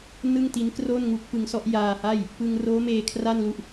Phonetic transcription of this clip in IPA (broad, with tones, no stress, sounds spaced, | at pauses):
n ɯ˥˩ ŋ t i˦˥ n k r o˥˩ n ŋ u˦˥ k̚ p ɯ˧ ŋ s ɔ˥˩ ʔ j aː˧ h a˥˩ j | p ɯ˧ ŋ r oː˦˥ m eː˧ kʰ r a˥˩ n l u˦˥ ʔ